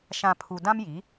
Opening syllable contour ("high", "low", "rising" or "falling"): low